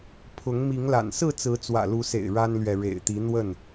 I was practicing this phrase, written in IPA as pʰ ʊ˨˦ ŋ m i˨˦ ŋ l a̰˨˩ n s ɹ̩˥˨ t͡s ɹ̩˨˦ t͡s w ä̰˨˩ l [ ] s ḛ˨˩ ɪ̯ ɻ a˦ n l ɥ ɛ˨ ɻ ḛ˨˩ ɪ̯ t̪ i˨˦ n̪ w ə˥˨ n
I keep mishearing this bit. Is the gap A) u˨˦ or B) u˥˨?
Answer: A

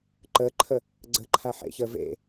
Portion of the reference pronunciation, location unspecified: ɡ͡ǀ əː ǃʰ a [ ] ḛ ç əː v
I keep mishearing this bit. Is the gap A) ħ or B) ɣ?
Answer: A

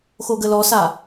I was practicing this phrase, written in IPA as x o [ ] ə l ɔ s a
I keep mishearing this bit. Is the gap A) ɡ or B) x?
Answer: A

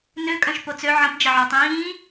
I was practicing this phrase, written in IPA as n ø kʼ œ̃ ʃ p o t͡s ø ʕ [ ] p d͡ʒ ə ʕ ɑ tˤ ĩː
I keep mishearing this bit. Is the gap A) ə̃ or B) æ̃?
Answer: A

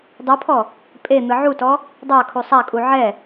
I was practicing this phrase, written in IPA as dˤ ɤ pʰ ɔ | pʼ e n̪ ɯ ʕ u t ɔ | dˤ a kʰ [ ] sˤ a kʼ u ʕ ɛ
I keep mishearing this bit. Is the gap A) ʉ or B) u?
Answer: B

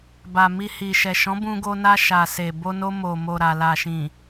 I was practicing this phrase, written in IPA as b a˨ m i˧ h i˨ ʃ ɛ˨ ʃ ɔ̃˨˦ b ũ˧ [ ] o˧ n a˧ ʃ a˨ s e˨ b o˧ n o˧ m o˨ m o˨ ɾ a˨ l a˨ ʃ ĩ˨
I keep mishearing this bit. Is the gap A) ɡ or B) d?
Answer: A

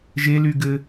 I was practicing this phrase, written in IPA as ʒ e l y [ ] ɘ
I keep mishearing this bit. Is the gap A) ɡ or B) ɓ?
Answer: A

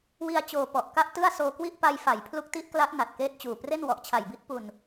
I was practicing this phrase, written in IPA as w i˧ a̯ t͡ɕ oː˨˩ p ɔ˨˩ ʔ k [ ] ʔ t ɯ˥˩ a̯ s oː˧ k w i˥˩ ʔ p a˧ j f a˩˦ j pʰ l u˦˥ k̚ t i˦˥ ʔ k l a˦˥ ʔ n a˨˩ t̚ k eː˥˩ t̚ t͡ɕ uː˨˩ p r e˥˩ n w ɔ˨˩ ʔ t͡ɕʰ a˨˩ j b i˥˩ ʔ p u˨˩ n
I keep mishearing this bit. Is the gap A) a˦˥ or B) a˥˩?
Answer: B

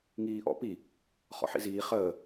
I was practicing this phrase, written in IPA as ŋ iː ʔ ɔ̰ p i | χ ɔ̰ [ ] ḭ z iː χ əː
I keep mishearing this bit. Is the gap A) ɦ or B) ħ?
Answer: B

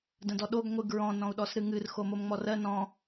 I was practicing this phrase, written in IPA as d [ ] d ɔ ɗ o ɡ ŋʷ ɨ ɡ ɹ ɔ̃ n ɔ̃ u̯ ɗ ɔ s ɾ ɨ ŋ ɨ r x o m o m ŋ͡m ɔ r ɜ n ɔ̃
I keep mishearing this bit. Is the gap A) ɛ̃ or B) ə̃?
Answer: B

